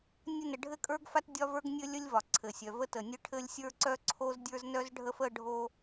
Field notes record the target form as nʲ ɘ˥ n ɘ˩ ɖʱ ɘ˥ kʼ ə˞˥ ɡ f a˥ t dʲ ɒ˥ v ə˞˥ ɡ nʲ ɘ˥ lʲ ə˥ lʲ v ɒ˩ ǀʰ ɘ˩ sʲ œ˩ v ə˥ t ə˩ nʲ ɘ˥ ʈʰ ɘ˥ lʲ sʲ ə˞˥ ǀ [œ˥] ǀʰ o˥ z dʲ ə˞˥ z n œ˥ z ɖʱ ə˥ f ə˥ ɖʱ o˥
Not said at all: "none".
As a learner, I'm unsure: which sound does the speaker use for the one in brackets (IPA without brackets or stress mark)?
œ˥